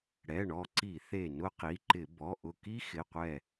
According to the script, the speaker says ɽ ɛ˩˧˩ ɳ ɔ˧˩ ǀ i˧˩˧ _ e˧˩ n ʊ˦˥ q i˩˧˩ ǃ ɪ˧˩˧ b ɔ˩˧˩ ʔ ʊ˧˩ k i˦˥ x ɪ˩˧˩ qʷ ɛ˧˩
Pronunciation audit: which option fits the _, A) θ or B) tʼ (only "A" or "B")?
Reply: A